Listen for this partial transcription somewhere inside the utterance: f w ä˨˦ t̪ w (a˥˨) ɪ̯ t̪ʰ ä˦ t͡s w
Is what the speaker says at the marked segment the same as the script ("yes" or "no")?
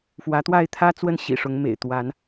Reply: yes